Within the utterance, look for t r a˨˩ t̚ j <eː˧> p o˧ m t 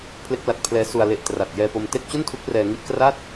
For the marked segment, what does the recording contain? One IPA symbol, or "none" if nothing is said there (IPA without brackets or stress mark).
ɛː˧